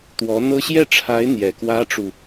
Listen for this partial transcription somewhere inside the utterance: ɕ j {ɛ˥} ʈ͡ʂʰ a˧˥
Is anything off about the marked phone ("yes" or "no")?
yes